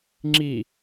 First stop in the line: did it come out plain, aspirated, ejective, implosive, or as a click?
click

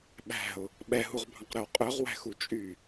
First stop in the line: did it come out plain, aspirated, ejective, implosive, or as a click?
implosive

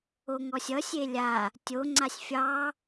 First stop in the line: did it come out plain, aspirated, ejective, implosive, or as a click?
plain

